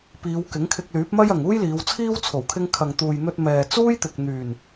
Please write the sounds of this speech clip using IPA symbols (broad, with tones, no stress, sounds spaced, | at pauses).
p iː˨˧ w k ɪ˨˥ ŋ kʰ ɪ˧ k̚ l yː˨˥ p̚ m ɐ˥ j ɐ˨ ŋ uː˥ j l iː˨˧ w t͡sʰ iː˥ w t͡sʰ o˨˩ w kʰ ɪ˧ ŋ kʰ ɐ˨ ŋ t̪ uː˨ j n̪ ɵ˧ t̚ m ɛː˨ t͡s uː˥ j t̪ ɪ˨ k̚ n̪ yː˨˩ n